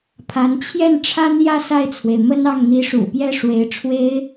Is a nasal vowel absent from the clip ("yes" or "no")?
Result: yes